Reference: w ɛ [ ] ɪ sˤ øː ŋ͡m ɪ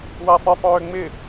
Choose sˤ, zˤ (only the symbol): sˤ